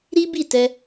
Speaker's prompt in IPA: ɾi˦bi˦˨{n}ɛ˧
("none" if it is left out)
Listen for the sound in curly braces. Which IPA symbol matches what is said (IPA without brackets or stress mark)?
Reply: t